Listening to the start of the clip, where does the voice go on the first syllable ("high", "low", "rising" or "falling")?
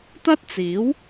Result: high